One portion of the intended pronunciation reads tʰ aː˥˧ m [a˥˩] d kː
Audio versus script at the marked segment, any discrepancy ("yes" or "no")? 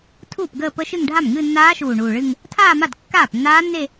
no